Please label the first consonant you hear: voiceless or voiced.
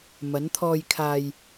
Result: voiced